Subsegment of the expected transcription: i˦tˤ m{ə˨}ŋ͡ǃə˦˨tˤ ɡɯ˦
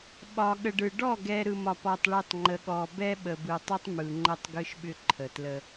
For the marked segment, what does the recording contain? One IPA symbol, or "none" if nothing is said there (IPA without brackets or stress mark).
ɯ˨